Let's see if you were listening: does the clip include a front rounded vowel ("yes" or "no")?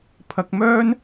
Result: yes